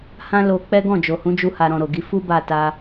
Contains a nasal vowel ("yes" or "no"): yes